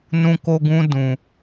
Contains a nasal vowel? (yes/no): yes